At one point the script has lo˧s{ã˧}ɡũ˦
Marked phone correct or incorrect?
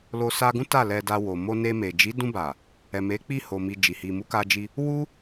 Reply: incorrect